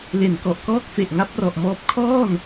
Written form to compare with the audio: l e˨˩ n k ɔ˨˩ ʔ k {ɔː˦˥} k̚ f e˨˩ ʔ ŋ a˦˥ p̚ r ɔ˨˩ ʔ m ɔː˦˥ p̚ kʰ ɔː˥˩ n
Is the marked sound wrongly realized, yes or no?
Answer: no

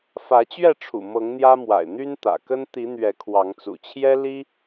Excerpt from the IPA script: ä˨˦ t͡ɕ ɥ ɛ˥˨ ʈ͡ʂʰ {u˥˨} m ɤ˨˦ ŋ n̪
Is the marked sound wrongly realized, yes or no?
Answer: yes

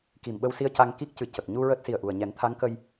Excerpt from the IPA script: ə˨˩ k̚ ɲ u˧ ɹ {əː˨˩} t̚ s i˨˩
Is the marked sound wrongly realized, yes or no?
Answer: yes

